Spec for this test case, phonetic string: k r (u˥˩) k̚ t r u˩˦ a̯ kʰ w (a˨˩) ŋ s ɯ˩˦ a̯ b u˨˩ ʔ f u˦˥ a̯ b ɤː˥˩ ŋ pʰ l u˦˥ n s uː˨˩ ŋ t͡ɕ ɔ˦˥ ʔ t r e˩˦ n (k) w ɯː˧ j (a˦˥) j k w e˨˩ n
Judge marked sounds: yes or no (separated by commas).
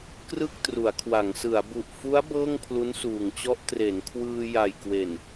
no, no, no, no